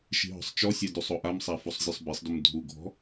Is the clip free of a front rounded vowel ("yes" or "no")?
yes